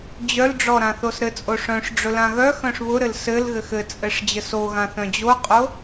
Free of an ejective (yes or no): no